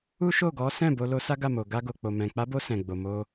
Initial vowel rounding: rounded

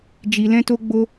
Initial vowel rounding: unrounded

